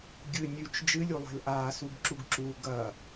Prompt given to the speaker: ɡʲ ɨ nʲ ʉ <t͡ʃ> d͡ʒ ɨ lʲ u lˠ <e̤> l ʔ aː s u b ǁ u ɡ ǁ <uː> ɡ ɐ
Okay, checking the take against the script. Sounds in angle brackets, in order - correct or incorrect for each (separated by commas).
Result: correct, correct, correct